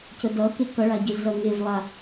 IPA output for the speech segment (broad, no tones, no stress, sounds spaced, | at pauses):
c ə d ʌ k e k ʌ ɭ a ɟ e ɮ ʌ ŋ e v lˠ a